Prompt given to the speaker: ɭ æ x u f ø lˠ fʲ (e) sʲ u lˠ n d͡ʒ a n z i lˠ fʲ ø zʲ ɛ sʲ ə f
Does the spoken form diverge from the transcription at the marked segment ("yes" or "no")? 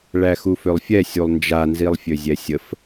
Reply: yes